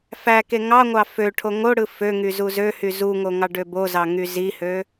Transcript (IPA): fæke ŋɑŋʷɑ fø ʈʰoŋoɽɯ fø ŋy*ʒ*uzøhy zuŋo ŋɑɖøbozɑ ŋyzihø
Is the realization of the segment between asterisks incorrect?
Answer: yes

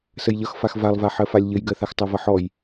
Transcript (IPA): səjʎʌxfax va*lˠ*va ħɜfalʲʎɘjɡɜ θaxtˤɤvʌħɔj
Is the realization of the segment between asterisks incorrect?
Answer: no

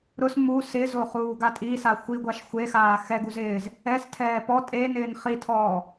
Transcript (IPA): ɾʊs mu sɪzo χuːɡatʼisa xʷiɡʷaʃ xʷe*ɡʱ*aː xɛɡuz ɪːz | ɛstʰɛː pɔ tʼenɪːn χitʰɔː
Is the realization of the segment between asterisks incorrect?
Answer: yes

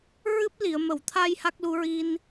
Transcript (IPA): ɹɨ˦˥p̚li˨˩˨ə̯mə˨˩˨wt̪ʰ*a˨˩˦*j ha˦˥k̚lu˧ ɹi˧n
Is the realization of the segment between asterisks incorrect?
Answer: yes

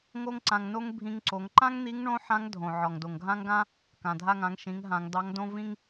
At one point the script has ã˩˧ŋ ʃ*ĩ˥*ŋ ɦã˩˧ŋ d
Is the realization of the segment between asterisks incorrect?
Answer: yes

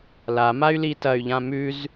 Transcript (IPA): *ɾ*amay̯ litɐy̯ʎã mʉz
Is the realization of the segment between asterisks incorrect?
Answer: yes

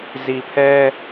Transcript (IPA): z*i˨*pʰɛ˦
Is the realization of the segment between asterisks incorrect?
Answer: no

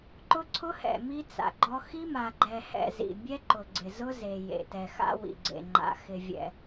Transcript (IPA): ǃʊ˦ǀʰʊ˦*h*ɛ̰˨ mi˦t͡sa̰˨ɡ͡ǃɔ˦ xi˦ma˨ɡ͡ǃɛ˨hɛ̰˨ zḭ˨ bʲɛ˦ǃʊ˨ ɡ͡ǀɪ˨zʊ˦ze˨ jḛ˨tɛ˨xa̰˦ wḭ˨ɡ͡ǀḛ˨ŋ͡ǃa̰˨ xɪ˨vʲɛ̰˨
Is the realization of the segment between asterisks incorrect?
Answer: no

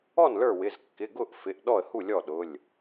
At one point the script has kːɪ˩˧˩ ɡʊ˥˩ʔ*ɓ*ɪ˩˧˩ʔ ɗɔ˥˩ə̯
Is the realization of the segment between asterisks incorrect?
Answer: yes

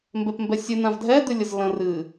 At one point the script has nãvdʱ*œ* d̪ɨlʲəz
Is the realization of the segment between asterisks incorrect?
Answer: yes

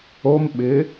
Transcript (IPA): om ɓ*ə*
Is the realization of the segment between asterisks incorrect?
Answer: yes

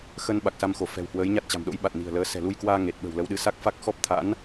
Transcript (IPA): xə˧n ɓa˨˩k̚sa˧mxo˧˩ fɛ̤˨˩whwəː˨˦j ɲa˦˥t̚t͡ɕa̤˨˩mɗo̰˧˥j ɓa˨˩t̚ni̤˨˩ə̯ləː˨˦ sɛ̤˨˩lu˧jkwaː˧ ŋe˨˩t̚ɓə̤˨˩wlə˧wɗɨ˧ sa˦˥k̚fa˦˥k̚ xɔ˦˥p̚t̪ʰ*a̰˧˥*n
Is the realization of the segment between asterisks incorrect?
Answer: no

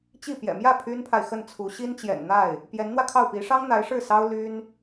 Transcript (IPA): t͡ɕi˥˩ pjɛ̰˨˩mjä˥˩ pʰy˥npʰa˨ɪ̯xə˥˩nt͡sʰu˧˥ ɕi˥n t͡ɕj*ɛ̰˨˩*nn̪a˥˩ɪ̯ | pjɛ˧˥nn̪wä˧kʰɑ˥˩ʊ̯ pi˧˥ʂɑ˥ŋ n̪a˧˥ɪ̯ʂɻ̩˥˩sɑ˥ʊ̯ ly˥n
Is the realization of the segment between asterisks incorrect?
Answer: no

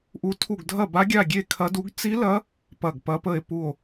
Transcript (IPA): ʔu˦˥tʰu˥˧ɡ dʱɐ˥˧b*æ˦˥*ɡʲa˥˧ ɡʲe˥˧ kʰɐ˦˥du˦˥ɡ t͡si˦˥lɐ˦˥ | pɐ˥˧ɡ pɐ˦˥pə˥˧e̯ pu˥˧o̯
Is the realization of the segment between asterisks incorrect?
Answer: yes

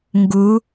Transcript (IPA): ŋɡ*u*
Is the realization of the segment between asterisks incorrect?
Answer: no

